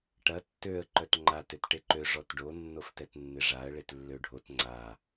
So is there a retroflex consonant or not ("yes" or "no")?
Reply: yes